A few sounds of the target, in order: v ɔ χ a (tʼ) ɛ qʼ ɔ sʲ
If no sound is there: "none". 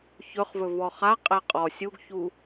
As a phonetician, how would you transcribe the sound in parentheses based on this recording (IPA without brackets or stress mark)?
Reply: qʼ